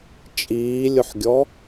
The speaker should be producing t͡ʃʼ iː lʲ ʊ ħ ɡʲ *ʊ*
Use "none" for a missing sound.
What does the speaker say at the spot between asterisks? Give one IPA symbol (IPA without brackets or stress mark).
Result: ɔ